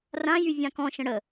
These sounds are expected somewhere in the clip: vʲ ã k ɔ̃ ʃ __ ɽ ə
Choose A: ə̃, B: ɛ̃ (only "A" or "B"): A